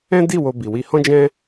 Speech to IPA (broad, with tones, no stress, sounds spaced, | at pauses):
ɛ̃˦ d i˦˨ w o˧ b i˨ w i˧ h ɔ̃˦ d͡ʒ ɛ̃˦